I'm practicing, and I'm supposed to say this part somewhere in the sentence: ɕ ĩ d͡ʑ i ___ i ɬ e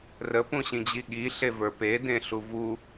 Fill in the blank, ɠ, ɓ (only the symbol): ɠ